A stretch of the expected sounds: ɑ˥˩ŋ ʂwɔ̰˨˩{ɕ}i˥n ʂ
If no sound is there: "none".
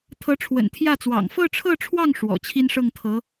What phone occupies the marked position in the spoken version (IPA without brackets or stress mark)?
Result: t͡ɕʰ